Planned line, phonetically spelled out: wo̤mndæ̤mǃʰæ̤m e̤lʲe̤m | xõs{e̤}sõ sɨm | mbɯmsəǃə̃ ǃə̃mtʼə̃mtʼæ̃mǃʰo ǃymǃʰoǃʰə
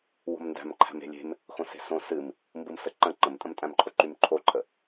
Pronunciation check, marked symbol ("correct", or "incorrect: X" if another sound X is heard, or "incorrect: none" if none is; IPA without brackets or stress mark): correct